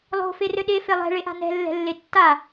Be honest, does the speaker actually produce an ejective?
no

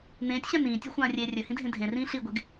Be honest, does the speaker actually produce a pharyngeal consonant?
no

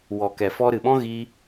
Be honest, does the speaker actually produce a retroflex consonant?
no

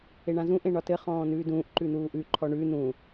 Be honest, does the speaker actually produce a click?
yes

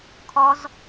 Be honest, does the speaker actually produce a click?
no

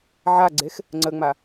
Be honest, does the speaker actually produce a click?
yes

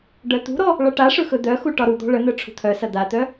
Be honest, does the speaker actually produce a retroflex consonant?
yes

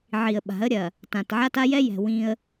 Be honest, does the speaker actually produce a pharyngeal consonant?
yes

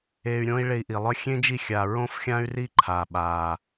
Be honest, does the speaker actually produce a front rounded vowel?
yes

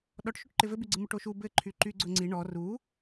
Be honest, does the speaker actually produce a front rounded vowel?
yes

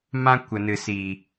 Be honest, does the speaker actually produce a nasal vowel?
yes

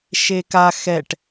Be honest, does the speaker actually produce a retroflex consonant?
yes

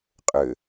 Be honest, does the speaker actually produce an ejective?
yes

